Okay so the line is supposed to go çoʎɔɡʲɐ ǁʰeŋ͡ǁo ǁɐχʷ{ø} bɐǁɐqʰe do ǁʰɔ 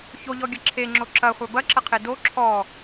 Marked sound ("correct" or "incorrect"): incorrect